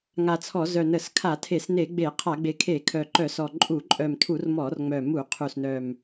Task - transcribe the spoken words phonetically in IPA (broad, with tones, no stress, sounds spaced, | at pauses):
ŋ a˨˩ t͡sʰ ɔ˧˩˧ z œ˨˩ n ə˧˩˧ s kʰ a˧˩˧ tʰ e˧˩˧ s n e˧˩˧ ɡ͡b e˧˩˧ qʰ a˧˩˧ ɡ͡b e˨˩ kʰ e˧˩˧ kʰ œ˨˩ ǃ œ˧˩˧ s ɔ˨˩ ǃʼ u˧˩˧ ǃʼ œ˨˩ m tʰ u˧˩˧ r m ɔ˧˩˧ r ŋ͡m œ˨˩ m u˧˩˧ qʰ u˨˩ s n œ˨˩ m